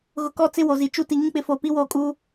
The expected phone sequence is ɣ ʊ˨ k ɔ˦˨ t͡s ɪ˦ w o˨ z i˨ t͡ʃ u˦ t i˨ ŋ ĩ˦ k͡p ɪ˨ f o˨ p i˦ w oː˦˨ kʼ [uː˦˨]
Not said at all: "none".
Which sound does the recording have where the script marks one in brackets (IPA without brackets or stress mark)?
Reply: uː˦